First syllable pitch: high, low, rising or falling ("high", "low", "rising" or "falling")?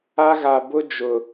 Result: high